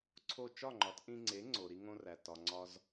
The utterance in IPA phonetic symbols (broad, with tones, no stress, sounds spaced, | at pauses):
ǀʰ o˥˩ t͡ʃ ɒ˥˩ ŋ͡ǃ ɒ˩˥ t ʔ ĩ˧ ŋ͡ǀ e˩˥ ŋ͡ǀ o˩ ɾ i˧ ŋ õ˧ r æ˩ t ɒ˩ ŋ͡ǀ ɒ˧ z